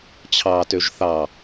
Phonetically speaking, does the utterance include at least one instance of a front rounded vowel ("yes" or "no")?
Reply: yes